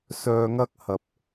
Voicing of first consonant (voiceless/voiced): voiceless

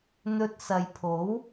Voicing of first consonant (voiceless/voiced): voiced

